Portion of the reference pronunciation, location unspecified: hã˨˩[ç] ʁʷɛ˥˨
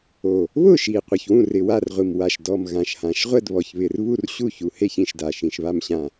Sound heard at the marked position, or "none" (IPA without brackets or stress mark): ʃ